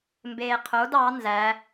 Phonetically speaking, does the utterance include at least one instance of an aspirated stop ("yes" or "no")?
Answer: yes